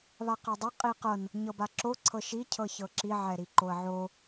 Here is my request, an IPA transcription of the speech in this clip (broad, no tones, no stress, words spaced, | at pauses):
βaqɛdˤa qʼiqɤn | ɲɤbaǁo ǀʰɤʃi cʰɤçɤǁi ʕɛɾiǃoə̯ʕo